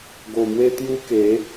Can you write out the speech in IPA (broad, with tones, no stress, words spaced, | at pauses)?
ɡo˨˩mwe˦ t̪ju˦ke˨˦